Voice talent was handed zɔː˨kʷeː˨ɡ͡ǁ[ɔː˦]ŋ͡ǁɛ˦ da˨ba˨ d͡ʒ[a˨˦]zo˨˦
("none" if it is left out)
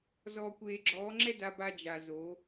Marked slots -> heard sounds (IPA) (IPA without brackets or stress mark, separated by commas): ɔː˨˦, a˨